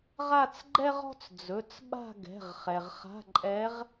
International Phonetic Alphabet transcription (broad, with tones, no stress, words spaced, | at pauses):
ʁa˥˧t͡sɡ͡ǃɛ˥ʁɔ̤˥t͡s d͡zɵ˩˧˩t͡sɓa̤˥˧ ɡɛ̤˩˧˩ʁχɛ˩ʁ χa̤˧˥˧ǃʼɛ˧˥ʁ